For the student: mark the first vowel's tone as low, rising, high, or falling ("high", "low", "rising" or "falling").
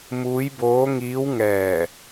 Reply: rising